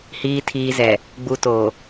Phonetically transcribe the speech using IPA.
hiː˨ tʰiː˨zɛ˨ | ɡ͡bu˨to˨

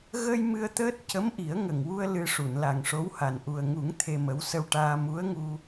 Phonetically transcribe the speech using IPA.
ɣə˧j mɨ˧ə̯t̪əː˦˥t̚ cə˧˥mʔi˨˩˦ə̯ŋə˨˩ŋwu˧ə̯ lɨ˧ ʂu˨˩˨nla˨˩ŋʂo˧˥wha˨˩n ʔu˨˩ə̯ŋu˨˩˦ŋ t̪ʰe˧mə˧˥w sə˧wʈaː˧ mu˧˥ə̯ŋu˧

